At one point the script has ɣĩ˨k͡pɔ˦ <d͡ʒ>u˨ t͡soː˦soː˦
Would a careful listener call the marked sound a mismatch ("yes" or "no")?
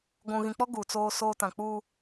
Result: yes